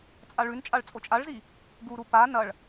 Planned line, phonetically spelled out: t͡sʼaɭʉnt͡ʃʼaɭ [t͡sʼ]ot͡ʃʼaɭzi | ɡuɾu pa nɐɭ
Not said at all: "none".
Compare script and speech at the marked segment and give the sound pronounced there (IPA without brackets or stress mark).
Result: t͡sʼ